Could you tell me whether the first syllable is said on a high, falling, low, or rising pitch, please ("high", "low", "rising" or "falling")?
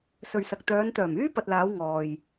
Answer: low